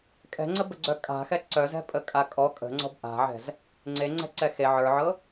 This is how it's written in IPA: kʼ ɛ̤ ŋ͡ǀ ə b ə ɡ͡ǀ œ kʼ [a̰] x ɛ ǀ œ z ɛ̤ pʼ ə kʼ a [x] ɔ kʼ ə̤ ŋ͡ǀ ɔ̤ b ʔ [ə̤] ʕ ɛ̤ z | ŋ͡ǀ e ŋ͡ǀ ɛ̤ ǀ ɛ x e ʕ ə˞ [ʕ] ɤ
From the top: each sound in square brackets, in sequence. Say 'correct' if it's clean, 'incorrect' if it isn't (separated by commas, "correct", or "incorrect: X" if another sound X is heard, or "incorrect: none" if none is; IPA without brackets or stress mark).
incorrect: a̤, incorrect: kʼ, incorrect: a̤, correct